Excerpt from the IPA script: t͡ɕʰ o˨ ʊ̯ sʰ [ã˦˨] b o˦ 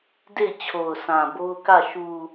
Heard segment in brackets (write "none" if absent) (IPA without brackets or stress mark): ã˨